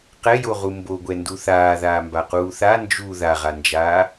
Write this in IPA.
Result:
qɛjoʁu mboɡʷɛndu θaːðaːmbaquː θa nd͡ʒu ðaʁand͡ʒaː

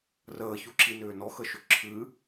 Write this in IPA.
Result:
rəːçuǁinʏː nɔxəʃʏ ǁʰɨ

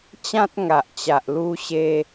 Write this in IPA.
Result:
t͡ɕã˦t̚ŋa˨ʔt͡ɕa˨ʔ lu˧ɕe˧

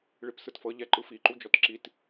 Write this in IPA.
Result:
ɭipsɯtfɤ ʎɛǃɯfi ǃud͡ʒɔtǁit

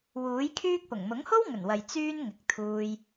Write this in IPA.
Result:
wuː˨˥jkʰyː˥k̚pʊ˨˩ŋ mʊ˨˥ŋho˥wŋɵ˨˩nwɐ˨j t͡syː˥n ŋɪ˨k̚t̪ʰuː˧j

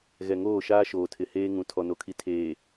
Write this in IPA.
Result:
ɣɛ˨ŋoː˦˨ʃaː˦ ʃoː˨tʰɪ˨heː˦ŋũ˨ tʰɔ˨no˨kʰi˨ tʰeː˨

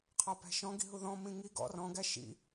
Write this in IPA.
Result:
qʰɒpæ̤ʃɔ̃ ɡi̤ɦuðɔ̃ mĩŋi ɡɔ̰r ɔ̃ ɡæʃḭ

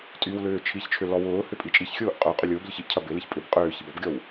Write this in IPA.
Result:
tʼywlʏː t͡ʃʰiçt͡ʃʰʏ lɔwʊːhʏ pʼit͡ʃʼiçxʲʊːʔ qʼœ qʼʏlʲʊːblʲʊç iʔcʰɐ bɪliç pʼʏb qʼʏː çibɔbɡʲɔw

